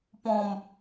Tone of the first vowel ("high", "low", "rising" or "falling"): low